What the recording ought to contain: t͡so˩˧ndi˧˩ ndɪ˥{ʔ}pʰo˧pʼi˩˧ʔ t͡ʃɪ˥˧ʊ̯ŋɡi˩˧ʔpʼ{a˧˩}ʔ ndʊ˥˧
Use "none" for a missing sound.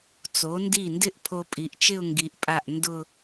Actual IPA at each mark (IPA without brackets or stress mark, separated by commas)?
ʔ, a˧˩